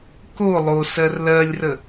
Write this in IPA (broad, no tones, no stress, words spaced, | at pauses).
ko lˠosɜr lɜlʲrə